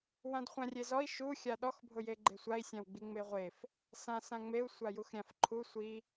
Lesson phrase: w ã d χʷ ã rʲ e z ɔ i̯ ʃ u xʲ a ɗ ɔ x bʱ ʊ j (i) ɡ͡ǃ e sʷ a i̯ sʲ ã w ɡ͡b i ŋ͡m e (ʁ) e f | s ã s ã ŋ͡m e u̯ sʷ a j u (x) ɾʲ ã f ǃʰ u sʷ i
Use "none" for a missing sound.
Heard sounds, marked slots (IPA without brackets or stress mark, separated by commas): e, ʁʷ, x